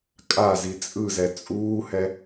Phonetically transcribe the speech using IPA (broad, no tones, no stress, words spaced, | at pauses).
kʼazi t͡sʼɯzɛ t͡sʼuːhɛ